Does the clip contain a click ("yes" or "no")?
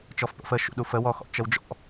no